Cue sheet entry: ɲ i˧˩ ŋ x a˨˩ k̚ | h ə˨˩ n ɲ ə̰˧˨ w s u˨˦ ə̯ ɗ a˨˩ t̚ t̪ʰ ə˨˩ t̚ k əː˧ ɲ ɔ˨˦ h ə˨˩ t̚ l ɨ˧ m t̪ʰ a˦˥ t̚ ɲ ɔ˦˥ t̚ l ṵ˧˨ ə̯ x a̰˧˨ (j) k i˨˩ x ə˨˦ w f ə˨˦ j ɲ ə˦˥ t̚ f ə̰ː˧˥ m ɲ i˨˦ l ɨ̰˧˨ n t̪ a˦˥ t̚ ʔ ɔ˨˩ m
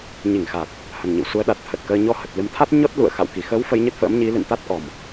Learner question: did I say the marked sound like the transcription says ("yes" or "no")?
no